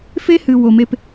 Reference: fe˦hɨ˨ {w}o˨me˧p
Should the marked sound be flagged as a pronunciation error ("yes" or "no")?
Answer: no